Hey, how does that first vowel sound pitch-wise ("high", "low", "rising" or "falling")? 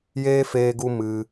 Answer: high